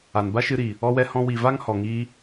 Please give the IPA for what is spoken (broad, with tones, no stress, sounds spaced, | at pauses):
a˨ n b a˦ ʃ ɨ˧ ɾ i˨ | ɔ˧ w ɛ˧ h ɔ̃˧ w i˨ v a˦ ŋ h ɔ˨ ŋ iː˧